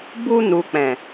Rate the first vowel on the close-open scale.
close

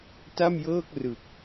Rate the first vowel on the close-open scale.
open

